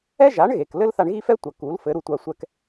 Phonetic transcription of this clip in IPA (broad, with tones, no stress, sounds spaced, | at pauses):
ɛ˥ ʒ a˩˥ ɳ ɣ e˩ k l ɘ˥ l θ a˧ ɳ ɣ i˥ f ɛ˥ tʷ ɐ˩ k u˩˥ l f ɘ˩˥ ɾ u˧ tʷ a˧ sʷ ɛ˧ k